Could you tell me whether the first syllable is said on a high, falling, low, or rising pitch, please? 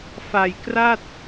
low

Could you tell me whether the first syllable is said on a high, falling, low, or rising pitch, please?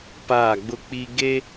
falling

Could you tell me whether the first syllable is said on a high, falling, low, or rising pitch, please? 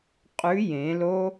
rising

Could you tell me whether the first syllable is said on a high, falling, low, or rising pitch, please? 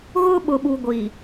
high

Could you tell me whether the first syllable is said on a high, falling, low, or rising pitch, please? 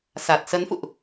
low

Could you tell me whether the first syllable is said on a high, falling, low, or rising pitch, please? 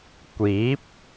rising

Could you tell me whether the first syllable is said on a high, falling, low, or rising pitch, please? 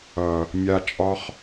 low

